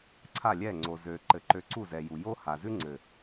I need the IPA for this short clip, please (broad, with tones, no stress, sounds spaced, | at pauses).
ǀʰ a˦˨ lʲ ɛ˦˨ ŋ͡ǀ o˨ z ø˨ ǃ ɘ˨ ǃ ø˧ ǀ u˦˨ z ɛ˨ j u˨ j o˦ h a˨ z ʉ˦ ŋ͡ǀ ɘ˨